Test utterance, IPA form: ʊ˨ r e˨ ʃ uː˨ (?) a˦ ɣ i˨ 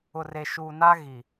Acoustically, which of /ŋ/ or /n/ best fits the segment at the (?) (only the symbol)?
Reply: n